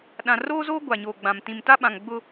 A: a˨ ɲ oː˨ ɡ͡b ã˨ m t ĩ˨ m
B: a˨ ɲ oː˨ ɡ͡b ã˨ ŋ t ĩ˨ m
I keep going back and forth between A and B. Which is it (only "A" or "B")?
A